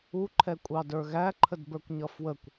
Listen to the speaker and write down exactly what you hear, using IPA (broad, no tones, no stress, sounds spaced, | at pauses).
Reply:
u ǃʰ ɛ kʷʼ ɑ d ə˞ ɣ æ ǃʰ ə d b ə˞ kʷ ɲ ʌ f w ə kʷ